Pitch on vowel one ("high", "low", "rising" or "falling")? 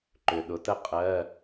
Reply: low